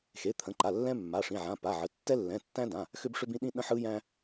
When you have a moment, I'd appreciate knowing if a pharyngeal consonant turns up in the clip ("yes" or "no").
yes